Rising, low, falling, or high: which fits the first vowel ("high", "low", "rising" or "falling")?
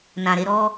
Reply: low